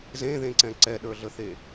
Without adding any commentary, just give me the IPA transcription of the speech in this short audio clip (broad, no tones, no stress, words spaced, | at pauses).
zẽðẽǀɛ̃ ǀɛɗə˞ɮəθe